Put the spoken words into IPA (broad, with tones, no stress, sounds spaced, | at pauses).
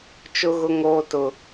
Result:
t͡ʃ ʊ˦ ɣ ʊ˦ ŋ oː˦ t ʊ˦